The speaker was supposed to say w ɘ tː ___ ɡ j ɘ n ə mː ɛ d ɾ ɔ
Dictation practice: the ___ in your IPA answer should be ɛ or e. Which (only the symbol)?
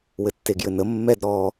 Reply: e